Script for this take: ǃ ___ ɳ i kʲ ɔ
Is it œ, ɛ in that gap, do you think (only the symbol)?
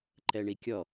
ɛ